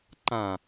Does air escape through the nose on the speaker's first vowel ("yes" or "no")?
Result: yes